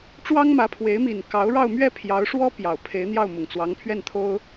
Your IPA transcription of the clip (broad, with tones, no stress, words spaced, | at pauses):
ʈ͡ʂwɑ˥ŋmä˧˥pʰwe˧˥ɪ̯ mi˨˩n kɑ˧˥ʊ̯ɻɑ˥˧ʊ̯ mɥɛ˥˩pʰjɑ˧˥ʊ̯ʂwɔ˥ pjɑ˨˩ʊ̯pʰe˧˥ɪ̯n̪jɑ˥˩ʊ̯ mʊ˨˩ŋt͡swɑ˧˥ŋpʰɥɛ˥˩nt̪ʰo˥ʊ̯